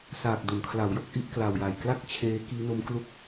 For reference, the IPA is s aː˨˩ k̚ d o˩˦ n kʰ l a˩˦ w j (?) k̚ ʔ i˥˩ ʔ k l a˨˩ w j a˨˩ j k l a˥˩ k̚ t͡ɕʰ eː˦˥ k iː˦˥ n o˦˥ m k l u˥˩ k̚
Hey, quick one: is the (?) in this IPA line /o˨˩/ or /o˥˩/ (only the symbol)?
o˥˩